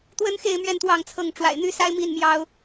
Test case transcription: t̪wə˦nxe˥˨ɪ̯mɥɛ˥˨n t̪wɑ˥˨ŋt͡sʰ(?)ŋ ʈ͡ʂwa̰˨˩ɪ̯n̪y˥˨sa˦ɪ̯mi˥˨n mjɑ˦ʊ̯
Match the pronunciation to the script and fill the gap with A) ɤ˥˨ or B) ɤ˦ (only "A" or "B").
A